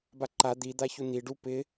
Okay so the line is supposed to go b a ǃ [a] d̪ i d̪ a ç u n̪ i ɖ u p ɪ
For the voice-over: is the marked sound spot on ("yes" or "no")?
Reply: yes